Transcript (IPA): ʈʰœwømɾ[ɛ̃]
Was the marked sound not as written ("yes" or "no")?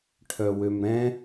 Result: no